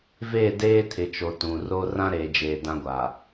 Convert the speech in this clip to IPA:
v eː˦˨ d eː˦ tʰ ɪ˨ t͡ʃ o˨ t ũ˨ r o˦ r ã˦ ɾ eː˨ d͡ʒ eː˨ d ã˦ ɡʷ a˨

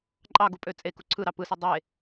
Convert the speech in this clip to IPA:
ǃʼ ɑ ɡ u pʼ ø t͡sʼ e k u ǀʰ ɯ ɾ ɑ p ɯ s ɯ dˤ e

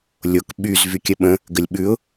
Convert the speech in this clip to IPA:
lʲ o k ɓ y z v y kʲ ə ɓ ə̃ | ɡ ə lʲ ɓ ʉ ʊ̯

